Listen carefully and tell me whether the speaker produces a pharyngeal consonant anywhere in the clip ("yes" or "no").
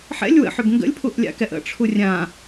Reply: yes